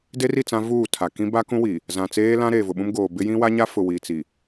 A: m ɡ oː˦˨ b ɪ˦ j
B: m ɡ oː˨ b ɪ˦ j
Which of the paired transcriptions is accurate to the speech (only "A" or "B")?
B